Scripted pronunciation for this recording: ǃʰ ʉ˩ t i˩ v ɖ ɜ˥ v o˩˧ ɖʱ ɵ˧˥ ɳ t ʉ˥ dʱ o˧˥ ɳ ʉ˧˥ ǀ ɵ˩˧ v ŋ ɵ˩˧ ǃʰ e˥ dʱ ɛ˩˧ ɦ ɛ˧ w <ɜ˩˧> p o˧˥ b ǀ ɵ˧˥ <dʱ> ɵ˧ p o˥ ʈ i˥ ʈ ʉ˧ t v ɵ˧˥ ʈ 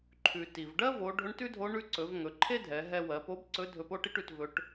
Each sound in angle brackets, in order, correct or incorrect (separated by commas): correct, correct